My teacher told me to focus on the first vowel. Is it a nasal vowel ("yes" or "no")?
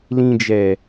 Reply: yes